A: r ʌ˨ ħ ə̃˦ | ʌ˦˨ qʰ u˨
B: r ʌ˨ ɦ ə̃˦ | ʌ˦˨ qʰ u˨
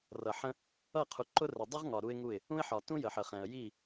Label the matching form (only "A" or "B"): A